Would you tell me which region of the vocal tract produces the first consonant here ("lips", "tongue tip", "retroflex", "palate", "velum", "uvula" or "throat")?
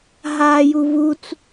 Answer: throat